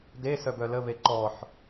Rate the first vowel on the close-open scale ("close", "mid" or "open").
mid